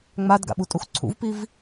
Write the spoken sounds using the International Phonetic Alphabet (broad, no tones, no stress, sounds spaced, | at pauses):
ŋ͡m a d ɡ a̰ ɓ u tʼ u x ǀʰ ṵ v p i v